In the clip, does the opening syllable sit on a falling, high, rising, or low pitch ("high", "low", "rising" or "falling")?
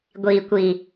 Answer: low